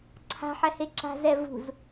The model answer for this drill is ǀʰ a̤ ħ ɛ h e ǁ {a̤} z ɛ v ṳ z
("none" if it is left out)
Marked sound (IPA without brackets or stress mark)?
a̤